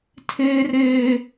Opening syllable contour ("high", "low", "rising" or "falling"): high